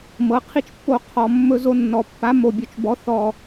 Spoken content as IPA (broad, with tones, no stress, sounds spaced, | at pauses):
m ɤ˨ qʰ i˦ t͡ʃ pː o˦˨ qʰ ɔ˨ mː ɵ˧ z o˧ nː ɔ˨ pː a˨˦ m o˨ bʲ o˨ t͡ʃ b ɔ˨˦ θ ɔ˨